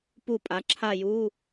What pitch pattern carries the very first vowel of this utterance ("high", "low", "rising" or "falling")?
falling